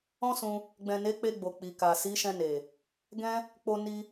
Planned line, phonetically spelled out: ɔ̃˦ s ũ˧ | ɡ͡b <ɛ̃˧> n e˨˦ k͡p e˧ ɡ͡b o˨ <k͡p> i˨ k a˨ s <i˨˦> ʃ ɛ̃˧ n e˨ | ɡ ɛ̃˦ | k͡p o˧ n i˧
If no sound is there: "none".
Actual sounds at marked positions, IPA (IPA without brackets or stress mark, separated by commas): ɛ̃˨, k͡p, i˨˦